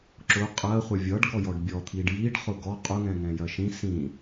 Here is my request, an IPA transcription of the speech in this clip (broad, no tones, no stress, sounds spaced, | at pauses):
ǁ ʊ qʼ ɜ χʷ ə vʲ ʌ ɖ ɡ ɔ j ɔ ɖ bʲ ɔ t̪ʰ i ɖ j i ɖ χ ʊ ɡ ɔ qʼ ʊ ŋ ɛ̃ ŋ ɛ̃ j ɜ ʃ ĩ s ĩ